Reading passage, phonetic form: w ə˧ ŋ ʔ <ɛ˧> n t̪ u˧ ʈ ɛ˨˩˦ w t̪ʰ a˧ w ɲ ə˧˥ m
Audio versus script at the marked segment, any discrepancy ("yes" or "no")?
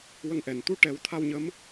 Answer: yes